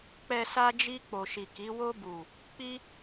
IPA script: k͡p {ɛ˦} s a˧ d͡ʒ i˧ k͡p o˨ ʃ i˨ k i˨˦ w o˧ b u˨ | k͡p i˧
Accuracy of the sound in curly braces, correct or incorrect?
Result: incorrect: ɛ˨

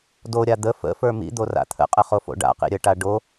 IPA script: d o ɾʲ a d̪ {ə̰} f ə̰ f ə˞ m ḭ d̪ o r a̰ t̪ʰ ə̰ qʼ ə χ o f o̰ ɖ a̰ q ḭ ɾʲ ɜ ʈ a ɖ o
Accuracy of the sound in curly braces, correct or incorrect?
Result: incorrect: ə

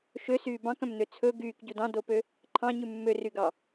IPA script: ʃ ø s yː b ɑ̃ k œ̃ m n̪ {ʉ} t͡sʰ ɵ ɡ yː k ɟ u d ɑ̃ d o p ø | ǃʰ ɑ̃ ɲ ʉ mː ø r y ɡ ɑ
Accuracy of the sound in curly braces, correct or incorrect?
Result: incorrect: ø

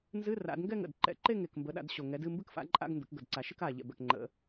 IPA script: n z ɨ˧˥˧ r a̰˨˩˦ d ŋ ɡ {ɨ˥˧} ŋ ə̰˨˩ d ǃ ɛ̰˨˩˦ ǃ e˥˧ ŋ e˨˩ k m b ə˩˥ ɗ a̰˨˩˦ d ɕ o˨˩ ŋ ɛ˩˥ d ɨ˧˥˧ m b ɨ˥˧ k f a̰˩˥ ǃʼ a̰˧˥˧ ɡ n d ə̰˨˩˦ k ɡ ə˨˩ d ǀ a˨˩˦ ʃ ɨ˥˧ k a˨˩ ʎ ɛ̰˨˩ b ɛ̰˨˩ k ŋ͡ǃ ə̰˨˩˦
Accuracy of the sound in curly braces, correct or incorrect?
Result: incorrect: ɛ˥˧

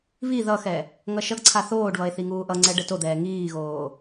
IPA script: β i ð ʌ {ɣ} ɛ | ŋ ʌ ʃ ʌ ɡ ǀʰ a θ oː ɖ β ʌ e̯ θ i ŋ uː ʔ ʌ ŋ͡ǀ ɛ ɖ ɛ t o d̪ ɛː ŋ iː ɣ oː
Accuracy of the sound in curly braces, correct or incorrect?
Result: incorrect: x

